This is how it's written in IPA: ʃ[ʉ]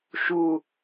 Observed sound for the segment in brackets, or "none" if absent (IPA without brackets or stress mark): u